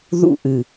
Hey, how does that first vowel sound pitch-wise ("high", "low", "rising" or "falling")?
high